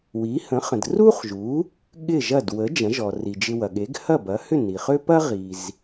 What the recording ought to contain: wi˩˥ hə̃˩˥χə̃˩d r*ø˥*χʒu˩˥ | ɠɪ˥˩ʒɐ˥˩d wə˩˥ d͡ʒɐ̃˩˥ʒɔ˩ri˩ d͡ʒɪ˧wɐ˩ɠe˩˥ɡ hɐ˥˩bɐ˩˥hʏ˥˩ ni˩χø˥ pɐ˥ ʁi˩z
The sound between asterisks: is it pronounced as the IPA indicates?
no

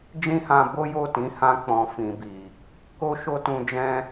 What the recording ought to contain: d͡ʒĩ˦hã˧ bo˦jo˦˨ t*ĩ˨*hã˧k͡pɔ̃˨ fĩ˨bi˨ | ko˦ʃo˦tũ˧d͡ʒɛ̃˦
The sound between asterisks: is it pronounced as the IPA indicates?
no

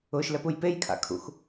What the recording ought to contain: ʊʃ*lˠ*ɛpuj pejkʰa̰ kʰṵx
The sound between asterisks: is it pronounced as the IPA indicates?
no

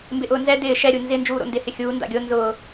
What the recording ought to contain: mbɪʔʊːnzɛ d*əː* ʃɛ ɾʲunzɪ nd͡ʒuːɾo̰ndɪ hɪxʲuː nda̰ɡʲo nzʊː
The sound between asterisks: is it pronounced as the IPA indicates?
no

